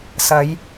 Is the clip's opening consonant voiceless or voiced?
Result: voiceless